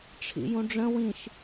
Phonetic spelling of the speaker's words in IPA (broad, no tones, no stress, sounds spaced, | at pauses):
ʈ͡ʂʰ ḭ j ũ ɖ͡ʐ ə̃ w ĩ ʃ